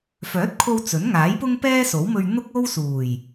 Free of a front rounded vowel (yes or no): no